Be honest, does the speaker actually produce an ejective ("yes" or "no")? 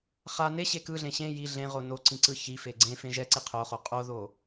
yes